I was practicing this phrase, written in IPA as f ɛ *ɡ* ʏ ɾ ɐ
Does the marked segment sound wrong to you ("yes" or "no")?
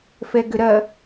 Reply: no